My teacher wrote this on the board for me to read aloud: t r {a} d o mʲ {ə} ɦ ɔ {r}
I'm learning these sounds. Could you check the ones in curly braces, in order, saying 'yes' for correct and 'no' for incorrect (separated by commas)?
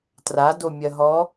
yes, no, no